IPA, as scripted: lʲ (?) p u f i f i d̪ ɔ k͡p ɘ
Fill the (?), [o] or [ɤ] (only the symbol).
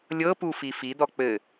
ɤ